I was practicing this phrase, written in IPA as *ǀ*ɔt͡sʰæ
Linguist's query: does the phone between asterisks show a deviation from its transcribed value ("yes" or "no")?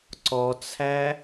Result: no